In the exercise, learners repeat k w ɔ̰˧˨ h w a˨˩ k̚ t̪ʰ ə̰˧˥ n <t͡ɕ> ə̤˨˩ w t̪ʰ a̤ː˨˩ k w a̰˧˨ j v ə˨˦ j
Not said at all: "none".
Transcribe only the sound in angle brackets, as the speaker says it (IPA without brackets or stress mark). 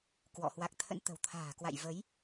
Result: t̪